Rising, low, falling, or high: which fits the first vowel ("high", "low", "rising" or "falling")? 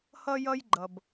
high